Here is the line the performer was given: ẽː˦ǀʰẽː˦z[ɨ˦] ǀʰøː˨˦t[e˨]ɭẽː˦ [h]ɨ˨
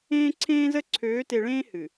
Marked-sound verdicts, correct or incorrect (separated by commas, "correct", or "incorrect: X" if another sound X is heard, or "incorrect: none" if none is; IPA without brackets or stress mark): incorrect: ə˦, correct, correct